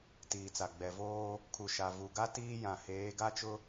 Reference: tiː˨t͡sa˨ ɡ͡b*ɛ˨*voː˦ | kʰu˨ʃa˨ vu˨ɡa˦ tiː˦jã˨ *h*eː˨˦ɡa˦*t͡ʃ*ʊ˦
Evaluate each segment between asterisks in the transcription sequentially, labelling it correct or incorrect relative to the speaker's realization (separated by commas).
correct, correct, correct